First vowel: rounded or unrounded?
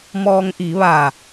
rounded